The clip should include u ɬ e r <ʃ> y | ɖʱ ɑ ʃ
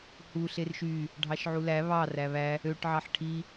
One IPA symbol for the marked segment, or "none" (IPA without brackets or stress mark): ʃ